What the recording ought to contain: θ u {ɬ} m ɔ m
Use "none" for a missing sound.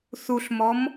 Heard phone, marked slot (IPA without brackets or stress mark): ɬ